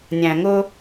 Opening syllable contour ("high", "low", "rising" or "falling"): low